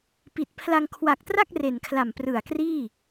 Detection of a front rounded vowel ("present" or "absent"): absent